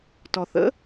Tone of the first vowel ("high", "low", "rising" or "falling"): low